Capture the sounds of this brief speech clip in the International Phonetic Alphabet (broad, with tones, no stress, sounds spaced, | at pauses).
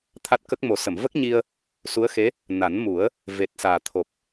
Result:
t̪ʰ a˦˥ t̚ k ə˦˥ k̚ m o˨˩˦ s ə˨˩˨ m v ə˦˥ k̚ ɲ i˧ ə̯ | s u˧˥ ə̯ x e˧˥ | n a˨˩˦ n m u˨˩˦ ə̯ | v e˨˩ t̚ s aː˨˩ t̪ʰ o˨˩ p̚